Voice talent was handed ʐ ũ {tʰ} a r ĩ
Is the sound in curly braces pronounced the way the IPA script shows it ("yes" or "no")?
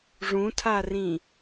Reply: yes